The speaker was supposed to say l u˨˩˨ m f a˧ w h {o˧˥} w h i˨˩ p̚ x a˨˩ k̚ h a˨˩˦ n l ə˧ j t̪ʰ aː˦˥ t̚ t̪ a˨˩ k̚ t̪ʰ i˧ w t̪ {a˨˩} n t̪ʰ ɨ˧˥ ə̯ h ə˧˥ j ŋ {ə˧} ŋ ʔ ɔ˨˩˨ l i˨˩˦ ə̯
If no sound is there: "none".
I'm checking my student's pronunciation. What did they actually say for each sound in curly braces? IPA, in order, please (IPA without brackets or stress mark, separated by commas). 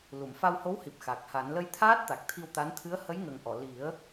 o˧˥, a˧˥, ə˨˩